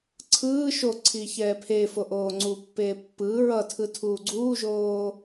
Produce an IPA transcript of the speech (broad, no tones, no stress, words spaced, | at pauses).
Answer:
ǀʰɯː ʃoǀʰi çɛːpʰefo ʔoːŋ͡ǀupːeː pːɯː ɹʌtʰɯ tʰuːɡ͡ǀuːʒoː